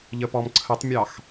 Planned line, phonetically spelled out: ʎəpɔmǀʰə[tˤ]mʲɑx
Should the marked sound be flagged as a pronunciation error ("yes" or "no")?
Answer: no